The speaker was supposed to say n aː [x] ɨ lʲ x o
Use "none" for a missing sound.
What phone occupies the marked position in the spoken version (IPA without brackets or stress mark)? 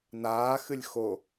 x